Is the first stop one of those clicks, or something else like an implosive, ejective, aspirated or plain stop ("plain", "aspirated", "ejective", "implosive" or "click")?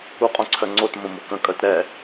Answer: ejective